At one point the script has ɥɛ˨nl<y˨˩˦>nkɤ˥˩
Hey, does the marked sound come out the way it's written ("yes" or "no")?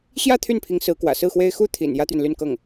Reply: no